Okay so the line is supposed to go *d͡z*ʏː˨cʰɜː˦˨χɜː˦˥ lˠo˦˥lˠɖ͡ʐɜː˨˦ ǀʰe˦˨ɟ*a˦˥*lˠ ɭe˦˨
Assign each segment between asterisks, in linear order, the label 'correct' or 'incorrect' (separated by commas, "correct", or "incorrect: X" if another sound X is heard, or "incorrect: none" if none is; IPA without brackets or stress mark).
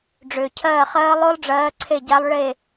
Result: incorrect: ɖ͡ʐ, correct